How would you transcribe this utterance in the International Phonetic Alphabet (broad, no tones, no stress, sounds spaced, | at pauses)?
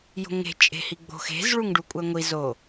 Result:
j o̤ ŋ e̤ t͡ʃʼ e̤ h i ɡ͡b o̤ x e̤ z ɭ u ŋ ɖ u kʷʼ æ ŋʷ i z o